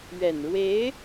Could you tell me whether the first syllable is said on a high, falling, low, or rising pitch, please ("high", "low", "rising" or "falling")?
low